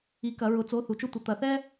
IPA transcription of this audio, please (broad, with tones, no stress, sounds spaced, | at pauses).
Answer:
i˩˥ k ɐ˩˧ ɹ ʊ˩˥ t͡s o˩˧˩ θ u˩˧ t͡ʃ ʊ˦ tʷ ə˩˧ t̪ ɐ˩˧ θ ɛ˦